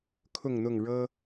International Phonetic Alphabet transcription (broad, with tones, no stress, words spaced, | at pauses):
kʰʊ˥˨ŋn̪ʊ˥˨ŋ ɻɤ˦